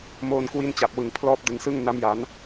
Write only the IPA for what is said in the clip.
m oː˧ n k w i˦˥ n t͡ɕ a˨˩ p̚ w ɯ˩˦ ŋ pʰ l ɔː˦˥ p̚ d ɯ˨˩ ŋ s ɯ˥˩ ŋ n a˦˥ m j a˩˦ n

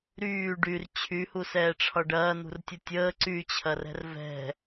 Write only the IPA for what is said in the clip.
ɾ yː ɖ y r t͡ɕʰ y h u s ɛː ʈ͡ʂʰ ɒ ɖ ɐː n̪ ṳ r tʲ ə tʲ əː ǀ y t͡ɕʰ ɐ r ɛ̤ r v ɛ̤

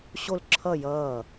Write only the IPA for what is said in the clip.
ɕ o l ǁʰ ʌ j ʌː

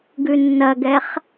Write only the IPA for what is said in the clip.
ɡ ʉ nː ɐ ɡ ɛ χ

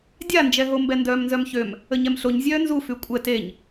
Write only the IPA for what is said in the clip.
dʲ a n d͡ʒ ɛ ɦ o m b ɛ n d œː m n z œ m ç ø m | ə ɲ ɛ m ɬ o ɲ zʲ œː n z u f y kʷʼ ɛ t e ɲ

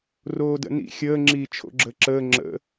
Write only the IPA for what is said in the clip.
r oː d ə̰ n ḭ xʲ əː ŋ͡ǁ iː t͡ʃʰ o̰ ɡ͡ǁ əː ǁ əː ŋ͡ǁ ə̰

